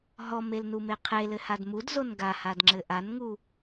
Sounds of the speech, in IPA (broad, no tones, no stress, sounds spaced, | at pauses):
ɦ ɔ m e l n u m e qʰ e l ɘ h a d m u d z o n ɡ a h a d ŋ͡ǁ ɘ ʔ a n ŋ u